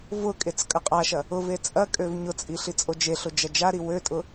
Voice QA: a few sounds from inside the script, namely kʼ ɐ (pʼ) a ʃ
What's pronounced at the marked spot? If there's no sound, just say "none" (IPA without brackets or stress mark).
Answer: qʼ